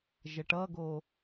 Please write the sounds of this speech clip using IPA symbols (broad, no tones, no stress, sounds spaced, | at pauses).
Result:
ʒ ə ʈ ʌ ɡ o